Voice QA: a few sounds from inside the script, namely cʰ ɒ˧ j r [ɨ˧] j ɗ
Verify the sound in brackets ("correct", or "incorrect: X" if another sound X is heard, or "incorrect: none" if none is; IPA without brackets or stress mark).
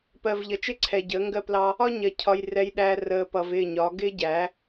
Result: incorrect: ɛ˧